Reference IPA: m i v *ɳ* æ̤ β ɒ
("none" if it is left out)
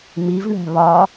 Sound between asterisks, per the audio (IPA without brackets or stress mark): ɳ